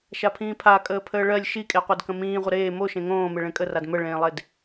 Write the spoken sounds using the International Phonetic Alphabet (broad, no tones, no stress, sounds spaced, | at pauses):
ʃ a pʰ ĩː pʰ a kʼ əː pʰ əː ɭ ɜ lʲ ʃ i kʼ e qʷ e d k ə̃ m ĩː ʁʷ ə ɾ eː m o ʃ ẽ ŋ õː m e ɭ ẽ kʼ ə r a d m ə ɭ ẽː lˠ e d